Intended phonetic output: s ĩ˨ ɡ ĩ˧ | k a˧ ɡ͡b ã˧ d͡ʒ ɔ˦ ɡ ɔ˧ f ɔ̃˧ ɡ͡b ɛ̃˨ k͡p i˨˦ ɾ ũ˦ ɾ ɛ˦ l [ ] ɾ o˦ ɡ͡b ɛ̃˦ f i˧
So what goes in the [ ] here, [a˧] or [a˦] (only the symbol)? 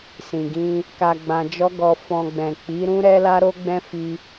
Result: a˦